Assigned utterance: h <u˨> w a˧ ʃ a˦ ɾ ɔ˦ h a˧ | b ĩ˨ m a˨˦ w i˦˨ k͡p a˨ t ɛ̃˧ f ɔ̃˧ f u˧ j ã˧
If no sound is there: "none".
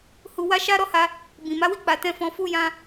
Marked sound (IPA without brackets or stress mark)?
u˨